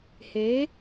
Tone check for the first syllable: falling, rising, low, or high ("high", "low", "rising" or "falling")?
rising